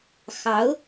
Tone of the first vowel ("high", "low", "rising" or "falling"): rising